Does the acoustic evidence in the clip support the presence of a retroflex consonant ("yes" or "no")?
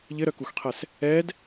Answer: no